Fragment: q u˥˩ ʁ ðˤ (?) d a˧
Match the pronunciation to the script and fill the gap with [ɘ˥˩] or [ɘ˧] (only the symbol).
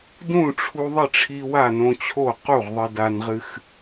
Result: ɘ˧